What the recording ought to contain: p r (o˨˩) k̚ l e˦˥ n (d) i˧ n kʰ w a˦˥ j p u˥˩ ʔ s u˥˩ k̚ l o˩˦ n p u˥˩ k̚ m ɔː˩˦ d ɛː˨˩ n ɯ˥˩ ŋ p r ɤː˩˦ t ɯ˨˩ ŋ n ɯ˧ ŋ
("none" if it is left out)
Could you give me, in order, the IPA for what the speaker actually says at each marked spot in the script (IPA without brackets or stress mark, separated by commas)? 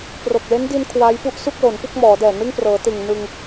o˨˩, d